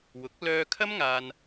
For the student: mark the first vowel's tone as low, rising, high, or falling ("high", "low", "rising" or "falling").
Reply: rising